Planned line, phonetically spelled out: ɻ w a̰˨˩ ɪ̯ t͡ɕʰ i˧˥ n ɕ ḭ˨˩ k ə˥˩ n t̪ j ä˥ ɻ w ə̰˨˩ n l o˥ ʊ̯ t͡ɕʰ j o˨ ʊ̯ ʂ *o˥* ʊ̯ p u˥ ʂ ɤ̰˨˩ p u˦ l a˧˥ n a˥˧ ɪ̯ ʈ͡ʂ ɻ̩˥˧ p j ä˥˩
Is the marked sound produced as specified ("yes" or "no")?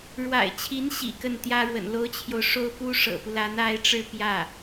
yes